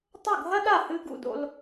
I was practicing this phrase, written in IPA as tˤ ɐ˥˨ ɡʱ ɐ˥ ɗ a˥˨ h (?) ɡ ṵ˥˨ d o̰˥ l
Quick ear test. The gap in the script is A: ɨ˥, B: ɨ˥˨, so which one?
A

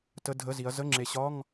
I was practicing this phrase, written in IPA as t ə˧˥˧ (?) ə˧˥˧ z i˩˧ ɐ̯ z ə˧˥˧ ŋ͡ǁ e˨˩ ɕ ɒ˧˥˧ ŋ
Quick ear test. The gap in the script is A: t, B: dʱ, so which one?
B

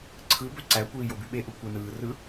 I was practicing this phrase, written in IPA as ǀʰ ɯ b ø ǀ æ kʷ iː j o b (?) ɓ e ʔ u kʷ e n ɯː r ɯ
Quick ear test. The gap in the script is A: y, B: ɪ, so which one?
A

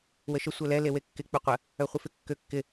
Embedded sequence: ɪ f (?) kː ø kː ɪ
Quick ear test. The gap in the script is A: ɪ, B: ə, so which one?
A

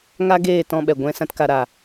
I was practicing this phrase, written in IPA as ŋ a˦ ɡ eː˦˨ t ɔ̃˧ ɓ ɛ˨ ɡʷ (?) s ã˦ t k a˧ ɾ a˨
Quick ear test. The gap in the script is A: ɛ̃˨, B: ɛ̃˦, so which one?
B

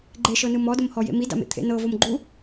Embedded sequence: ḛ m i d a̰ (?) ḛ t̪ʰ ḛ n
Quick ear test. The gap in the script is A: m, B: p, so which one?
A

